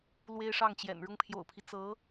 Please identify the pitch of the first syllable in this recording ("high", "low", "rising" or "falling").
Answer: high